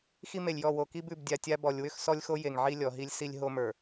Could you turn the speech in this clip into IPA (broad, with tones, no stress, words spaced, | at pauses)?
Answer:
xi˦me˨lʲjɔ˦˨ wo˨ki˦b ʉ˨bdʲa˨tʲa˦ bɔ˨lʲwʏ˦x sɔ˦lʲxo˦ je˨ŋʕi˦lʲɔ˨ɦi˦lʲ si˦lʲɦo˦mə˞˨